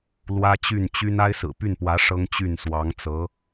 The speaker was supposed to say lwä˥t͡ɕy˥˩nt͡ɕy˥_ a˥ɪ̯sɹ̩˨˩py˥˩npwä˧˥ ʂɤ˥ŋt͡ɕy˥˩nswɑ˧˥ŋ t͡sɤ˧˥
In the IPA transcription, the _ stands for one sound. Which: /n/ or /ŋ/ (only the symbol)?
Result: n